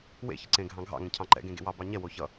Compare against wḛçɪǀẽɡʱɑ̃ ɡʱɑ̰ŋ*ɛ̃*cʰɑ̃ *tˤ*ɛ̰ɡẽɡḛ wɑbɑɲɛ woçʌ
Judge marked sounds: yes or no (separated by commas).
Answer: yes, no